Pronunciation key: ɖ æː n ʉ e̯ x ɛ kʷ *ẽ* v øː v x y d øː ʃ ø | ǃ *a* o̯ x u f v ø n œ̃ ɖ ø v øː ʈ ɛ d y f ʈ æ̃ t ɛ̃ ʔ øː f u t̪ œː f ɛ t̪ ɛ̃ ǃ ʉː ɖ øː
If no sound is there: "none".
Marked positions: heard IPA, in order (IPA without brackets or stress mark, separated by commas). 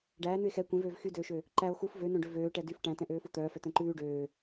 ẽ, æ